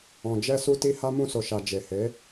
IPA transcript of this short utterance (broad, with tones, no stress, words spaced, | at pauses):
ɔ̃˨d͡ʒɛ˧ su˧ti˧ ha˦ mũ˧so˨ ʃa˨ d͡ʒe˨he˨˦